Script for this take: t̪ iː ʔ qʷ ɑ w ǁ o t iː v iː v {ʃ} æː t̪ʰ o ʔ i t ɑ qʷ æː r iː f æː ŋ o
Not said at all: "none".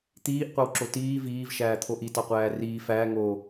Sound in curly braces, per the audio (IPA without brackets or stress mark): ʃ